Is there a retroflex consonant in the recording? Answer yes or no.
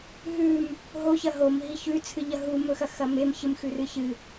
no